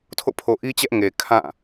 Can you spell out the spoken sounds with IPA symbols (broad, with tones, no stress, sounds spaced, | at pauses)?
tʰ o̰˦˨ pʰ o˨ ʔ i˦ t͡ɕ ɛ˦ ʔ ŋ e˨ kʰ ã˦˨